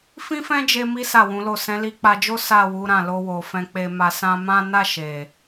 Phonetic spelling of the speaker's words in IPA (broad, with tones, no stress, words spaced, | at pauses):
fĩ˦fɛ̃˦d͡ʒe˧ mi˦ sa˦˨wũ˨˦lo˦˨ sɛ̃˨˦li˧k͡pa˧d͡ʒo˦ sa˦˨ wu˨˦ɾã˦˨ lo˧wo˨ fɛ̃˨k͡pe˨ma˨sã˧ mã˦ na˦˨ ʃe˨